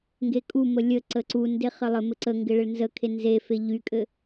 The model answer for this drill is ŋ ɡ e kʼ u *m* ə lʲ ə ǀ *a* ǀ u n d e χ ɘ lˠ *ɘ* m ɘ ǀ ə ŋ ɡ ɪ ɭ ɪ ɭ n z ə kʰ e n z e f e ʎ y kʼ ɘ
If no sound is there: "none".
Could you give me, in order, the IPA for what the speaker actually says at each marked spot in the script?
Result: m, ə, ɘ

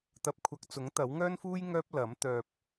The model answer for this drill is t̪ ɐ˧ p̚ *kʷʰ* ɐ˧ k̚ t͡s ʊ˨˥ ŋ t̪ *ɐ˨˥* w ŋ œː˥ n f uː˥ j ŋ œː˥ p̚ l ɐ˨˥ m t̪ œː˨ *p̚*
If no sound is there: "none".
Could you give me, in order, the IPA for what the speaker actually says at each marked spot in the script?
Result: kʷʰ, ɐ˨˥, p̚

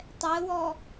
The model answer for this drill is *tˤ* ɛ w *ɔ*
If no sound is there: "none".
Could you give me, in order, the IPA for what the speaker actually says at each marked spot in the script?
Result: tˤ, ɔ

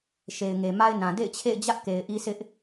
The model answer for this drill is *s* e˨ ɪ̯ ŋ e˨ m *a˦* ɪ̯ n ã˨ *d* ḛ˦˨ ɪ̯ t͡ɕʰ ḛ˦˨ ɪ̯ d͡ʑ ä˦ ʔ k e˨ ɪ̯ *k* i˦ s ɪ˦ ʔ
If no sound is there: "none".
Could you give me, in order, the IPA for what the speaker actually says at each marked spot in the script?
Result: ʃ, a˦, d, ʔ

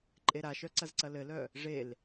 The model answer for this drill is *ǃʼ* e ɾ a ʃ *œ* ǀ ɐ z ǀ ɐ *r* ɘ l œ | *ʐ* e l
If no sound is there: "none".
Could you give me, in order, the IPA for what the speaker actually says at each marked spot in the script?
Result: ǃʼ, œ, l, ʐ

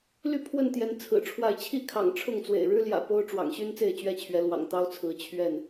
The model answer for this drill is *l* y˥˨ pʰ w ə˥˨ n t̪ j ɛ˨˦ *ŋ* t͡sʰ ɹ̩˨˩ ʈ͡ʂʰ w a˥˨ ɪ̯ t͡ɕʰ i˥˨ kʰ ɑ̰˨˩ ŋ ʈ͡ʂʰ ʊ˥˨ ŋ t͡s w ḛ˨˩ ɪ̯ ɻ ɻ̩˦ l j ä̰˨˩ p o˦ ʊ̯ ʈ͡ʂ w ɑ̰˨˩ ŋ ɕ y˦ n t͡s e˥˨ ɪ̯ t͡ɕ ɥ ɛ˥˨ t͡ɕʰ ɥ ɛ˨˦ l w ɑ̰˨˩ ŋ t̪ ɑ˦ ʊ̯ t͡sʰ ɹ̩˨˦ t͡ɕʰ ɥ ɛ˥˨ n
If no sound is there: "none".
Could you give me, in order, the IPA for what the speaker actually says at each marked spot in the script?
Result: l, n

